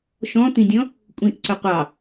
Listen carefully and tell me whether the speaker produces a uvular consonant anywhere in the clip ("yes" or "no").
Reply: yes